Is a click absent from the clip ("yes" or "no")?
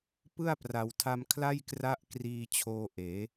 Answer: yes